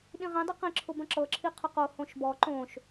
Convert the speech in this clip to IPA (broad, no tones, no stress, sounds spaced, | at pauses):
ɗ ĩ ʁ ĩ dˤ i q ĩ ǁʰ ʊ b ə̃ ǁ ɤ ǁʰ i qʰ ʊ q o h õ ʃ b ɔ ǃ õ ʃ